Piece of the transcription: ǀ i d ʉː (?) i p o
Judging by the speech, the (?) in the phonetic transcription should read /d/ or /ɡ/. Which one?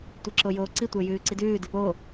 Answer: d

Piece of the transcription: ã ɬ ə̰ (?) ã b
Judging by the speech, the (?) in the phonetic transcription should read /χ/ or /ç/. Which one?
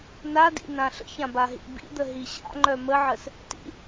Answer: ç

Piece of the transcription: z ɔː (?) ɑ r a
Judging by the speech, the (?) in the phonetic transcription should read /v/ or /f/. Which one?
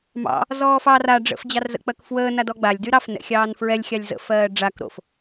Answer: f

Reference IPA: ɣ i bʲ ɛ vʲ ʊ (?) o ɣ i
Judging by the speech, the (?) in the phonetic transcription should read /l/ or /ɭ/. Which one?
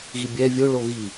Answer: ɭ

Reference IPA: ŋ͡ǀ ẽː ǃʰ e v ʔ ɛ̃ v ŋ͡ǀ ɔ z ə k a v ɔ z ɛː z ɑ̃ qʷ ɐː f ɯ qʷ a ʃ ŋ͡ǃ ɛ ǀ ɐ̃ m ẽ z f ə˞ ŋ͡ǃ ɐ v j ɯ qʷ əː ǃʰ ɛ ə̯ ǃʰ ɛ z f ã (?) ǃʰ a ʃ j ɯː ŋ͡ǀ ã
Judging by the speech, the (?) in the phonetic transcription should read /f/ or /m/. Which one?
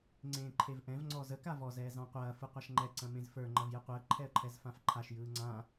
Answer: f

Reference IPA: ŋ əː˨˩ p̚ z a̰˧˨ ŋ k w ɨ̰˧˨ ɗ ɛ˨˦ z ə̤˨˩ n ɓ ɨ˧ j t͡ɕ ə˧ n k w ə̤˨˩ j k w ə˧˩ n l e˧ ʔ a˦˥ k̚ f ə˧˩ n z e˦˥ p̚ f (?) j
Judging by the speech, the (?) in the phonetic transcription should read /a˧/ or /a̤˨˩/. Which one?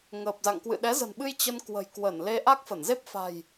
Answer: a̤˨˩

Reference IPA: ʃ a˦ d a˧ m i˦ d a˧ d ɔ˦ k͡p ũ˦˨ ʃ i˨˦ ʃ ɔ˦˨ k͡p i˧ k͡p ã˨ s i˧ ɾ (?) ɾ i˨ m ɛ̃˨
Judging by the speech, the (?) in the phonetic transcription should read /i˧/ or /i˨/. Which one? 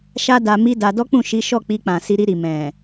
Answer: i˧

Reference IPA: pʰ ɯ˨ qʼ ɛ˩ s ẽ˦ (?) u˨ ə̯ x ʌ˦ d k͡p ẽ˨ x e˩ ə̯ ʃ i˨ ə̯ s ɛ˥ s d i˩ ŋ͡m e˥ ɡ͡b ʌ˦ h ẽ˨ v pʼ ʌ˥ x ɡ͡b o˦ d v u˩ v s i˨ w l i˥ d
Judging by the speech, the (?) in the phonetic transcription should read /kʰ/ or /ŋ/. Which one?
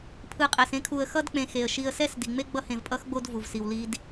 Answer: kʰ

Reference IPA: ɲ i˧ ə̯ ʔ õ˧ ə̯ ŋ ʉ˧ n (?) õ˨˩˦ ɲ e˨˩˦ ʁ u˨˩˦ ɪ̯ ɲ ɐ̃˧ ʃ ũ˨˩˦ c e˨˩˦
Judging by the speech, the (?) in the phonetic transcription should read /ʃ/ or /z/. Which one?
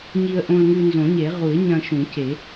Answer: z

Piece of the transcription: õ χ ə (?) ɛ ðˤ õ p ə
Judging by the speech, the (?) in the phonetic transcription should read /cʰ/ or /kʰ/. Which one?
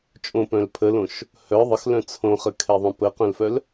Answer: kʰ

